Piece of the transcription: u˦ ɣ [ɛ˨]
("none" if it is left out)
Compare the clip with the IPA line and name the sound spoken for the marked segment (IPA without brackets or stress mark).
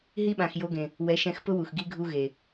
e˨